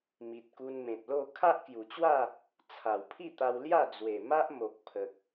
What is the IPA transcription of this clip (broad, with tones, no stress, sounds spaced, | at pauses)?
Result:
m i˨ t̚ k u˧ n m ẽ˨ t̚ l o˥˧ kʰ a˦ ʔ k j u˨˩ t͡ɕ w a˥˧ | t͡sʰ a˨˩ w pʰ i˥˧ t̪ a˧ w l j a˥˧ d͡z w e˨˩ m a˦ ʔ m o˨ k̚ pʰ ə˨ k̚